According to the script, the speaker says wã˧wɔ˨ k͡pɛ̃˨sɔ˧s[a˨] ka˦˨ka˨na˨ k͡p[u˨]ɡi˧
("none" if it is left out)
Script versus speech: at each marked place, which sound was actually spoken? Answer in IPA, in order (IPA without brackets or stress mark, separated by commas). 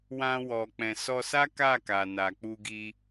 a˦, u˧